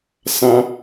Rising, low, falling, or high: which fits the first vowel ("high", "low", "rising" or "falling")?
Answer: rising